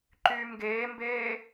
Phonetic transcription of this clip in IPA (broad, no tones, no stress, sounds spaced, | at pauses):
ǃ yː m ɡ eː m b eː